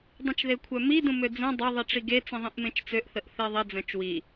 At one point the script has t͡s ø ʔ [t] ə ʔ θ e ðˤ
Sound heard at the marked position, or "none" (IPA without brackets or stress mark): θ